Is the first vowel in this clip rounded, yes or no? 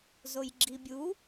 yes